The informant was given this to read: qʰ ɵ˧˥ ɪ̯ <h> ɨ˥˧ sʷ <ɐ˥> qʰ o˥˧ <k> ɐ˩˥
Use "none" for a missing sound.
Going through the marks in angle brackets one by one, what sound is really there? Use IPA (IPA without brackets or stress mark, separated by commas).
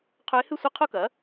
h, ɐ˥, k